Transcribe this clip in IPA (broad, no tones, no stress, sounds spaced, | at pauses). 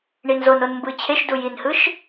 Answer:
ɳ i n z o n o n m b ɯ t͡ɕʰ e ʃ d u j i n h ɯ ʃ